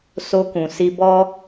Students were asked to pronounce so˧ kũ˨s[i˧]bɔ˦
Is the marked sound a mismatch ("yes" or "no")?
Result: no